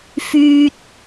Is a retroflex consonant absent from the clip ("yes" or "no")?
yes